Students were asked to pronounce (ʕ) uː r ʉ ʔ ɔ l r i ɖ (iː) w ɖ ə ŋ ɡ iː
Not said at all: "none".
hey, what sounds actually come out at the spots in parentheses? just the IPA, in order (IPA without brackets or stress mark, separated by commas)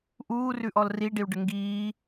ʔ, i